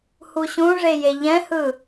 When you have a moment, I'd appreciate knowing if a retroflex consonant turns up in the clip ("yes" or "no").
yes